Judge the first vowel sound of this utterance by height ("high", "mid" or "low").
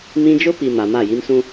high